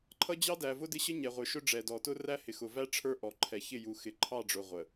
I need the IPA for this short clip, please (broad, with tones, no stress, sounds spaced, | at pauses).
ǃʰ ʌ˦ d͡ʑ ɑ˦ d æ˨ v ʊ˦ d ɪ˦ ɕ ə˦ ɲ ɛ˨ ʁʷ ə˞˨ ʃ ʊ˦ ɖ͡ʐ ɛ˨ d ɔ˨ t ʊ˦ r æ˦ h ɪ˨ x ʊ˨ v æ˦ ʈ͡ʂʰ ə˞˦ ʔ ɔ˨ ǃʰ ɛ˨ ç ɪ˦˨ j u˨ x ɪ˨ ǃʰ ɑ˦˨ ɖ͡ʐ ʊ˨ ʁʷ ə˨